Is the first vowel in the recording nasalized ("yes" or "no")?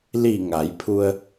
no